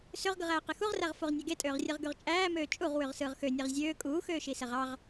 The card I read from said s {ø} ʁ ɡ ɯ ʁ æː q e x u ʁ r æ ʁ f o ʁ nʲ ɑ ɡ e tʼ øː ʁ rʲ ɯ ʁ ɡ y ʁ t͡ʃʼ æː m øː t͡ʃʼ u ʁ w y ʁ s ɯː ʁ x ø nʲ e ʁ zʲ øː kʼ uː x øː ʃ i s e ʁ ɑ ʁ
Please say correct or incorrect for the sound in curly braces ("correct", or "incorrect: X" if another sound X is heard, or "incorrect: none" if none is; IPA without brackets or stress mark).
correct